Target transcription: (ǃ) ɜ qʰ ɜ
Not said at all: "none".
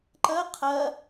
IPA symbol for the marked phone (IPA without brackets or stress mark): ǃ